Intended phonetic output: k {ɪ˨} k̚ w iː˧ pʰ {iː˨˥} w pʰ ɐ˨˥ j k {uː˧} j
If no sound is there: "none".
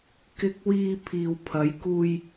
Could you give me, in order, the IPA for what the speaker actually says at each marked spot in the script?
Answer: ɪ˧, iː˨, uː˧

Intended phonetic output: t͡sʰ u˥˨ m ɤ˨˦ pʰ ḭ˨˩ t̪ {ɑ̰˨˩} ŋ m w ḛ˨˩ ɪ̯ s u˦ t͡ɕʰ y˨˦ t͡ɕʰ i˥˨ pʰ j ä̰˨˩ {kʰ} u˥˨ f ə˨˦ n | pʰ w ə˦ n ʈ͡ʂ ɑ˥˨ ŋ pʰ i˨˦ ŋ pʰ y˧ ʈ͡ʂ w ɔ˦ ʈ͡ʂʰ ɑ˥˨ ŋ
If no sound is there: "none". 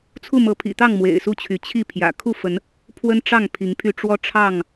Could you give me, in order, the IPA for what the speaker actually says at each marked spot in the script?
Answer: ɑ˥˨, kʰ

